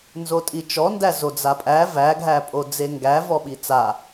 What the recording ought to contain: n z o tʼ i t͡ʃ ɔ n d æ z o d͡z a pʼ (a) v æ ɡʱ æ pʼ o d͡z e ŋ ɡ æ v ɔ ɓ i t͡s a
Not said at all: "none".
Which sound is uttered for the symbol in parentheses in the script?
æ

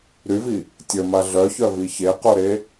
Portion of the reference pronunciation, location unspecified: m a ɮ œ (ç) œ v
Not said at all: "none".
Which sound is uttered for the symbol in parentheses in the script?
ç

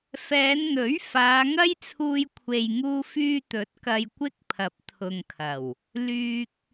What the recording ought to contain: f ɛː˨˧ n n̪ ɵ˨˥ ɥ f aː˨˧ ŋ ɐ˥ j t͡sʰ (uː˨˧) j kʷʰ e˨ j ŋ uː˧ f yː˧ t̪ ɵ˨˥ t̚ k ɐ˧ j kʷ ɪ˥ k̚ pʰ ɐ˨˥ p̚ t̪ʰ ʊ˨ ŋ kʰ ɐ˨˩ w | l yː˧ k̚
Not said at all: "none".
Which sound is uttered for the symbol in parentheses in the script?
uː˧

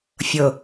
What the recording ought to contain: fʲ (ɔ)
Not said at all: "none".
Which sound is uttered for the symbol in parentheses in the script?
ɤ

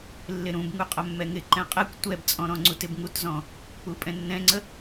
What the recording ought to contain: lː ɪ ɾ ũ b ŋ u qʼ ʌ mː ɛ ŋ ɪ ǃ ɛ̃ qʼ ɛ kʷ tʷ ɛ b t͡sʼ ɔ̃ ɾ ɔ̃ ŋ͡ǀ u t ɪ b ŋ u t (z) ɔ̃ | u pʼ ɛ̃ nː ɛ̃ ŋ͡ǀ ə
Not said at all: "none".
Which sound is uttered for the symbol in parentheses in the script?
z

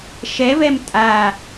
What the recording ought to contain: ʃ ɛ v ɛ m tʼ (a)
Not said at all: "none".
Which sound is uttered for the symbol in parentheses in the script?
a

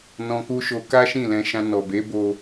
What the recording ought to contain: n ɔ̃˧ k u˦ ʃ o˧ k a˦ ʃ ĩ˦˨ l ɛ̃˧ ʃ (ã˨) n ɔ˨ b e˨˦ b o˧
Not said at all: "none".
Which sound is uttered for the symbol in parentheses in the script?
ã˧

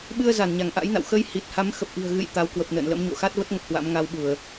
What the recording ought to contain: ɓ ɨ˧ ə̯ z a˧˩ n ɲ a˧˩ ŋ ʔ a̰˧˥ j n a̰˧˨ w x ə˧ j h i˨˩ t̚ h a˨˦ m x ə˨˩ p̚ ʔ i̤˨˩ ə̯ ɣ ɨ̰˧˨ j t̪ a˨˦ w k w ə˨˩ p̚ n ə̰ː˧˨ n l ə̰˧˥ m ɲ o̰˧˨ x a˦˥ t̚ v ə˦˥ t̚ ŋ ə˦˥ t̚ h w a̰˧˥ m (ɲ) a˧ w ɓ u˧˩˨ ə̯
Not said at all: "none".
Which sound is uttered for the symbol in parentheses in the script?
ŋ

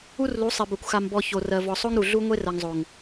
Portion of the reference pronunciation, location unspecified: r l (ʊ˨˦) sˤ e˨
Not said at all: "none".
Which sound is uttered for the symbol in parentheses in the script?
u˨˦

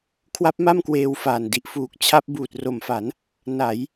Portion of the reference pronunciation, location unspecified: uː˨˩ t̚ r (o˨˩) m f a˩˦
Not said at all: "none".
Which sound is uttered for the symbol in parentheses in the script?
o˨˩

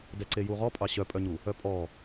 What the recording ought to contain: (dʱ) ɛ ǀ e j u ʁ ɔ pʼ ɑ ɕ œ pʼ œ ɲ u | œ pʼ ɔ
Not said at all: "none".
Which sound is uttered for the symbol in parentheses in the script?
d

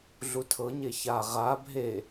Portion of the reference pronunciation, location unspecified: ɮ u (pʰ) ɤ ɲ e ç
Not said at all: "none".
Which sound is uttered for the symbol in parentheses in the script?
tʰ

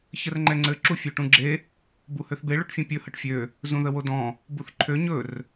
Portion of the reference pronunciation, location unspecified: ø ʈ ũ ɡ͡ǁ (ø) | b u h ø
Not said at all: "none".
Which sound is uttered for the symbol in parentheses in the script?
e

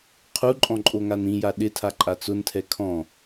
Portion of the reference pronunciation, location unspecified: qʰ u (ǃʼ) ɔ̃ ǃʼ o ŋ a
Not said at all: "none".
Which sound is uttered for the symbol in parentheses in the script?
ǃʼ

